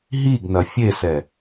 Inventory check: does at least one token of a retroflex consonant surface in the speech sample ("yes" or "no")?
no